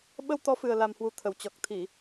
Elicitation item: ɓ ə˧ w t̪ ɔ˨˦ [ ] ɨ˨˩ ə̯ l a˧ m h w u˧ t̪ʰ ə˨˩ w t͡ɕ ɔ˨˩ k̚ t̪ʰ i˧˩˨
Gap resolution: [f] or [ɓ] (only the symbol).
f